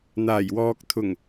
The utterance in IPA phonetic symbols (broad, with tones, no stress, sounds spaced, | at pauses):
n̪ aː˨˩ j w ɔː˨ k̚ t̪ʰ ʊ˨˩ ŋ